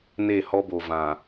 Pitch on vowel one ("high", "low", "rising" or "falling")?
falling